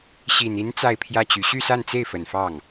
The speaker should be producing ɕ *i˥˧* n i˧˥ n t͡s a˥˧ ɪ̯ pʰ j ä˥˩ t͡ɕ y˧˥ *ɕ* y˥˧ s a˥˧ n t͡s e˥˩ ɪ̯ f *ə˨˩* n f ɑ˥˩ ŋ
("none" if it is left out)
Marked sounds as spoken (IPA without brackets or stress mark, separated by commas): i˨˩, ɕ, ə˨˩